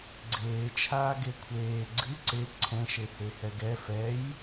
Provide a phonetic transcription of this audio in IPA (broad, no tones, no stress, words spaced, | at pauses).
ɡ͡ǀeːt͡ʃʰaː ɡekʷʰeː ɡ͡ǀɨ ǀe ǀʰɛ̃ʃehe hɛɡɛ fɛj